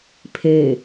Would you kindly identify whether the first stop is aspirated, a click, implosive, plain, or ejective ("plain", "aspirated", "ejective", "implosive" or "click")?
aspirated